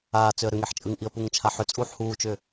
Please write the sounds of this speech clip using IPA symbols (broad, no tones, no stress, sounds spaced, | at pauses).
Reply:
aː t͡s ʏ ə̯ ɾ ʏ ŋ e ħ t͡ʃʼ ɯ ŋ ʔ i ə̯ p u ŋ t͡ʃʰ a ħ ʏ t͡sʼ uː ħ h uː t͡ʃ ʏː